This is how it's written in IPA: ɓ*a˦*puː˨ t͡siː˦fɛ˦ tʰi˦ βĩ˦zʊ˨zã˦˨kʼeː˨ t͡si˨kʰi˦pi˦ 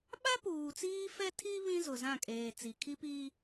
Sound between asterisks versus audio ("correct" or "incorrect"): correct